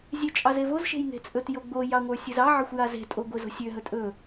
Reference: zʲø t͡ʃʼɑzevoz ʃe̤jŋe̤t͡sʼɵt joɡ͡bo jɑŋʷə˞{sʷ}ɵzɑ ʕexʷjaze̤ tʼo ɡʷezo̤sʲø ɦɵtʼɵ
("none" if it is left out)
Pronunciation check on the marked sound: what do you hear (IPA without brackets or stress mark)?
sʲ